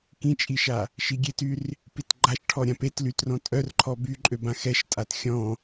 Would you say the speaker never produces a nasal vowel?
no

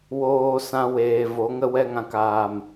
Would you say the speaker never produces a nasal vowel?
no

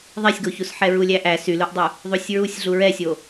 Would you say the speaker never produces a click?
yes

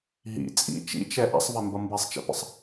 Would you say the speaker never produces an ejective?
no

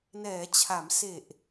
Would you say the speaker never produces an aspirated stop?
no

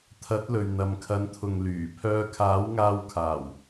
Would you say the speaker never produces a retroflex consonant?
yes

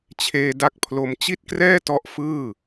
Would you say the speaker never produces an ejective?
yes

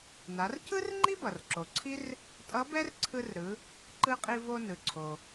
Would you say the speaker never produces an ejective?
no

